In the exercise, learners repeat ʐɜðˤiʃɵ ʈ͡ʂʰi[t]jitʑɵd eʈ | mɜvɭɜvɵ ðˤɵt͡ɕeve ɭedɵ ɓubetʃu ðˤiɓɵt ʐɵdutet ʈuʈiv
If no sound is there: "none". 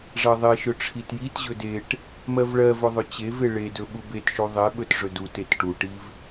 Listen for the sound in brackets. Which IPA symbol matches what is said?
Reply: t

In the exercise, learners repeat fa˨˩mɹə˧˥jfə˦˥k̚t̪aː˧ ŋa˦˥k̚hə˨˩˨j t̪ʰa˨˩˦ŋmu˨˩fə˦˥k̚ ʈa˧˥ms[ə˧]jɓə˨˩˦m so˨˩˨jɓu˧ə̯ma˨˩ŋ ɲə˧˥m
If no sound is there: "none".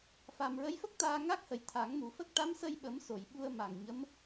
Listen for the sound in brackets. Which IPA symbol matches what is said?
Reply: ə˧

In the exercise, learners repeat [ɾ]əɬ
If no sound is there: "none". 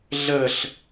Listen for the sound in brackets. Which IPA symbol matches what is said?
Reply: ɮ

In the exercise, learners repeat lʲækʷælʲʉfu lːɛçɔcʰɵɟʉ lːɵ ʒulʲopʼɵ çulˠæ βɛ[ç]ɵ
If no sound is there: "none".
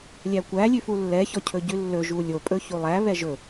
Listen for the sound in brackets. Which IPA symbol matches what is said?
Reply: ʒ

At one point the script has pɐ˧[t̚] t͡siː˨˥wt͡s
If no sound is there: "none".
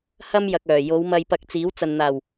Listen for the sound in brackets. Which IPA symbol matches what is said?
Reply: k̚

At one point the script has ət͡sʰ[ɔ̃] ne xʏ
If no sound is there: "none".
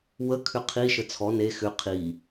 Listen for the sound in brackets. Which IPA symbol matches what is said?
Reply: ɔ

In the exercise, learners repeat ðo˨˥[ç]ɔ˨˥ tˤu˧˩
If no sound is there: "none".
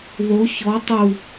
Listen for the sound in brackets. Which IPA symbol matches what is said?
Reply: ç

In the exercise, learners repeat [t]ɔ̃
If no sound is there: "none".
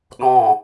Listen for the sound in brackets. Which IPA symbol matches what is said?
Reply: ɗ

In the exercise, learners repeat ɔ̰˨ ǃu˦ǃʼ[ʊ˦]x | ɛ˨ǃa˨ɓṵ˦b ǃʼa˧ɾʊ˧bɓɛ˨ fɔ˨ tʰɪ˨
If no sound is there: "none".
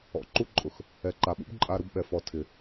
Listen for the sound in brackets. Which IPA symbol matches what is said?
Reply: ʊ˨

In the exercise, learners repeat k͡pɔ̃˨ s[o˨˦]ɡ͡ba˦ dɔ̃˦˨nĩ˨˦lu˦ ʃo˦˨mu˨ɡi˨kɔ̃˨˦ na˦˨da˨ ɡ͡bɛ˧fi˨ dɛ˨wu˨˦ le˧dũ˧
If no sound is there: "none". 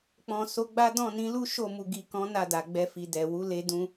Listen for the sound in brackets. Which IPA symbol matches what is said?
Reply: o˨˦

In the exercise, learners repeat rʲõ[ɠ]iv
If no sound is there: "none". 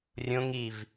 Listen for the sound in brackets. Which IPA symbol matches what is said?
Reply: ŋ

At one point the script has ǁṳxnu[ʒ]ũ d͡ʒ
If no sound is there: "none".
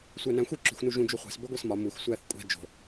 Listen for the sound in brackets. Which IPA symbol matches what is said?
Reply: ʒ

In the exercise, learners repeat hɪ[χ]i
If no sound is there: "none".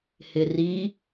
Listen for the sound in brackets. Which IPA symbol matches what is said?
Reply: r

